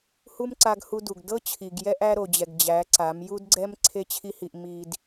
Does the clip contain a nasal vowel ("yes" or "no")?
no